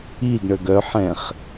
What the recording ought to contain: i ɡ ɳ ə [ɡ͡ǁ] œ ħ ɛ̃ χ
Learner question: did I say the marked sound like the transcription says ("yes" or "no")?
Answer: no